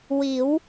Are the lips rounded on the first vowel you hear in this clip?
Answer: no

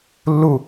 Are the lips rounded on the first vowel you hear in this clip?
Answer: yes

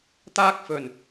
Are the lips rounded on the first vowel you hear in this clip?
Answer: no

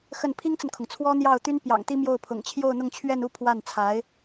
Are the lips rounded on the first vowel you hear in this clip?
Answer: no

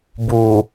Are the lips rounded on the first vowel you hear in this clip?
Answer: yes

